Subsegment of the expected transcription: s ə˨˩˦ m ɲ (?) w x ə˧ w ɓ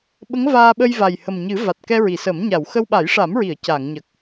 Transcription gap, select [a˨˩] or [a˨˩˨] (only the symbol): a˨˩˨